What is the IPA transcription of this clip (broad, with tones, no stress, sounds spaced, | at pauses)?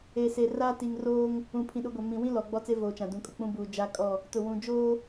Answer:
e˨ s e˨ r a˦ t i˨ ŋ r oː˦ ŋ | ũ˨ pʰ ĩ˨ ɗ ʊ˨˦ ɡʷ a˨ m ĩ˨ w ĩ˦ l ɔ˨ ɡ͡b ɔ˦ t͡s e˦ v oː˨ t͡ʃ ã˨ d ũ˨ kʼ ʊ˨ k͡p ũ˦ b uː˨ d͡ʒ a˦ kʼ ɔ˦˨ | t ʊ˨ w ũ˨ d͡ʒ oː˦